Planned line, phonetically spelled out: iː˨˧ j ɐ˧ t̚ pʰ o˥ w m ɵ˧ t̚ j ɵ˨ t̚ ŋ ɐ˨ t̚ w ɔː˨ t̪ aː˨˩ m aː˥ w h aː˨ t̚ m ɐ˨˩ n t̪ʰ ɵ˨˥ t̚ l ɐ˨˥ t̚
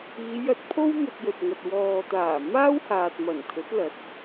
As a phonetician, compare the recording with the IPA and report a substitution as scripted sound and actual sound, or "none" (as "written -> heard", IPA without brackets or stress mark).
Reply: none